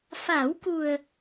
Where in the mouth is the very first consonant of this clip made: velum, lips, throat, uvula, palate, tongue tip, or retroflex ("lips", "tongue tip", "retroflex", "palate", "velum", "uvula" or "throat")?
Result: lips